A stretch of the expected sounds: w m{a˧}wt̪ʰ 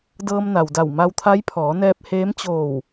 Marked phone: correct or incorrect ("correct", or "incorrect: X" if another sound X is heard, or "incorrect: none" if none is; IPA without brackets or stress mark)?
correct